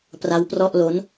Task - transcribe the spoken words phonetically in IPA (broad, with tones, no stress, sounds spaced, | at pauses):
p r a˦˥ w p r ɔ˥˩ ʔ l o˦˥ n